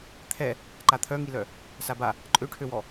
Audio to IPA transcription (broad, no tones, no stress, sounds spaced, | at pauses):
t̪ʰ ɛ | ǃ a t̪ʰ œ ŋ i l œ | s a b a | ǃʼ ø ʈʰ ø w ɔ